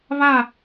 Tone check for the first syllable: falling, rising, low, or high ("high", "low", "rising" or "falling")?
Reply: falling